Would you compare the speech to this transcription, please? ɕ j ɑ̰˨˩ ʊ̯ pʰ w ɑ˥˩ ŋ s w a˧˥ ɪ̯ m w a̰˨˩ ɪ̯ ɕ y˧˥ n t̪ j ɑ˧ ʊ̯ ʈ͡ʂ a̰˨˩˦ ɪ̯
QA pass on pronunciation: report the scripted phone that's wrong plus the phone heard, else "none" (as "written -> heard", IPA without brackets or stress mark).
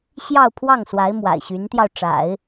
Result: ɑ̰˨˩ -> ɑ˥˧